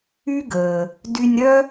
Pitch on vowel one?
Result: high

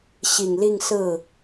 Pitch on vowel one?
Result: low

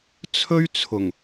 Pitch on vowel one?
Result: high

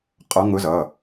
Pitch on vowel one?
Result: rising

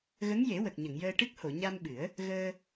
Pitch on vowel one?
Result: rising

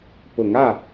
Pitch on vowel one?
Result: rising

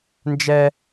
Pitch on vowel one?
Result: high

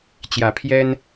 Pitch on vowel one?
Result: rising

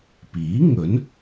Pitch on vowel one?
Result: rising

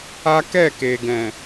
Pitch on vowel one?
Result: high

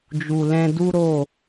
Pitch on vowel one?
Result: low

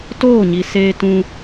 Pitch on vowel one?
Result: falling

